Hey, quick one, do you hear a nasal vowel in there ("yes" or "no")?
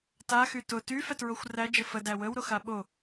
no